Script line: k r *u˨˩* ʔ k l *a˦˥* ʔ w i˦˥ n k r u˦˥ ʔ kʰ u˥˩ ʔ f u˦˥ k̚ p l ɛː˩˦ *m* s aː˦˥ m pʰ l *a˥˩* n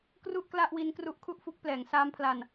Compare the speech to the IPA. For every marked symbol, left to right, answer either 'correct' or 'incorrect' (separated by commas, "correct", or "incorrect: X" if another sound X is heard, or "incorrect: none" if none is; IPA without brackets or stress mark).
incorrect: u˥˩, incorrect: a˥˩, incorrect: ŋ, incorrect: a˧